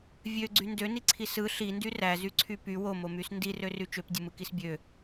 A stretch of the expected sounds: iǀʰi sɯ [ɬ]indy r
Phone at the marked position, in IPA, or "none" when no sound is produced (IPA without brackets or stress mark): ɬ